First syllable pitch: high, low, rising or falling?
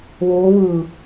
rising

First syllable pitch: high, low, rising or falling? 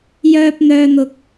high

